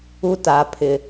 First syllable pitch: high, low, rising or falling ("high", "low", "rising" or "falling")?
high